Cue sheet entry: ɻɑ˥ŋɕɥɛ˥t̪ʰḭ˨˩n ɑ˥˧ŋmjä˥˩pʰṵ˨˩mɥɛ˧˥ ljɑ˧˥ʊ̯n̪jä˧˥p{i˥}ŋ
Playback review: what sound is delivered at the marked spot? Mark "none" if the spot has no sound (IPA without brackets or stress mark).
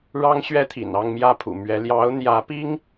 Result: i˥